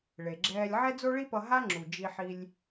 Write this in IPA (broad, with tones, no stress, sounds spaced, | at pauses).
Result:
ɭ e˩ ɡ͡ǁ ɛː˧ lʲ ʕ ɛ˥ d͡z o˥ ɭ i˥ p ʌ˧ ɦ a˥ ŋ͡ǁ u˩ d͡ʒ i˧ ħ i˧ lʲ